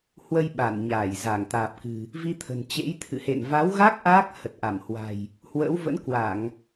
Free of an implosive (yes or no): no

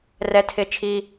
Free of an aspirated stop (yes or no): no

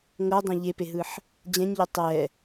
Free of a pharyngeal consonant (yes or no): no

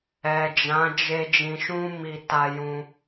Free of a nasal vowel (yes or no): no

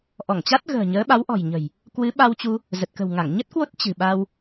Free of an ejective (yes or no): yes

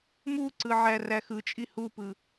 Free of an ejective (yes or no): no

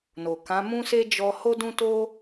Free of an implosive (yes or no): yes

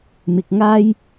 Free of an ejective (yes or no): yes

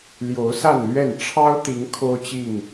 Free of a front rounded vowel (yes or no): yes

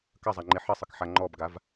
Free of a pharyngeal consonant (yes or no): no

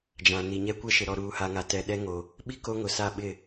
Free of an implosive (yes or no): no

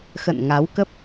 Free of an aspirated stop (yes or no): yes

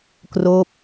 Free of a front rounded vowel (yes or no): yes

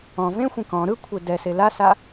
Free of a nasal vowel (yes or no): no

